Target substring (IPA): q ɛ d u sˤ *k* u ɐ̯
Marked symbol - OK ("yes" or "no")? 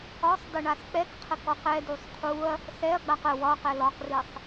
no